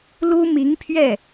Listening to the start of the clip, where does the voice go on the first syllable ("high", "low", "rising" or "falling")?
high